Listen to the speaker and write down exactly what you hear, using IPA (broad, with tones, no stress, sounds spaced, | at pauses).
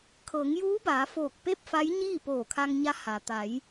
kʰ ɤː˩˧ ŋ j uː˧˥ b aː˩˧ f oː˧˩ k̚ p e˥˨ p̚ f a˧˥ j ɲ iː˥˨ p oː˧˩ kʰ a˧ ŋ ɲ a˧˥ h aː˩ t̪ a˩˧ j